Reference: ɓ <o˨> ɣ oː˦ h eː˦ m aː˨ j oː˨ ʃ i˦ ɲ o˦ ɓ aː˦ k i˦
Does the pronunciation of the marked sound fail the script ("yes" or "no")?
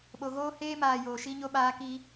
no